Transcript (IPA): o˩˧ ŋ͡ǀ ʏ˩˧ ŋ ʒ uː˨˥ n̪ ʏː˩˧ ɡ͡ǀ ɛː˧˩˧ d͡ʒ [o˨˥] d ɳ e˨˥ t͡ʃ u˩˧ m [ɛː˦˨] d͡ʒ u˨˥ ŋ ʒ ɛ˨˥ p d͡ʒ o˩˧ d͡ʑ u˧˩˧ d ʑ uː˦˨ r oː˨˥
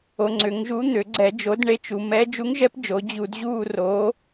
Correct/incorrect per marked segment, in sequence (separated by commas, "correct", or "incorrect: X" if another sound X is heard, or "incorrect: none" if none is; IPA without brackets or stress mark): correct, incorrect: ɛː˨˥